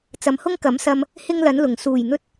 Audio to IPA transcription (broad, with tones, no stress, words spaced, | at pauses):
t͡sɐ˨mhʊ˥ŋ kɐ˨˥msɐ˧m | hɪ˥ŋlɐ˨˥nlʊ˨˩ŋ suː˨˩jn̪ɵ˧t̚